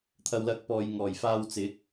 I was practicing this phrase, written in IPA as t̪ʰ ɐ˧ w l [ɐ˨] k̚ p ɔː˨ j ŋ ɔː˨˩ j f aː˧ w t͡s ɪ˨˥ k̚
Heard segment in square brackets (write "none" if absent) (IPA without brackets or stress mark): ɐ˧